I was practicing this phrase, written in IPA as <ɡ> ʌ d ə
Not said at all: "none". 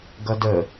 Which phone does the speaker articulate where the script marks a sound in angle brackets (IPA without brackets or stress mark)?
ɡ